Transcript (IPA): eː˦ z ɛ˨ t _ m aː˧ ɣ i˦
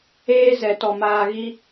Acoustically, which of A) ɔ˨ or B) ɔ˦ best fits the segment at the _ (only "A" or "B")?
A